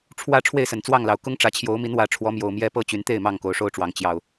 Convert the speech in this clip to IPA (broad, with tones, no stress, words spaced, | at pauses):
ʈ͡ʂʰwä˦ ʈ͡ʂʰwe˥˨ɪ̯sə˨˩nt͡swɑ˥˨ŋlɑ˨˦ʊ̯ kʊ˦ŋʈ͡ʂä˨˦t͡ɕʰjo˨˦ʊ̯mi˨˦n wä˨˦ʈ͡ʂʰwɔ˨˦ mjo˨˩ʊ̯mjɛ˦pɤ˥˨t͡ɕy˨˦n t̪e˥˨ɪ̯ mɑ˥˨ŋko˨˦ʊ̯ʂo˦ʊ̯ʈ͡ʂwɑ˨˦ŋ t͡ɕjɑ˨˩ʊ̯